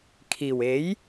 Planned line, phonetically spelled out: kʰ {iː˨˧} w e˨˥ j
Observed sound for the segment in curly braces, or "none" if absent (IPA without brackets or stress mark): iː˨˩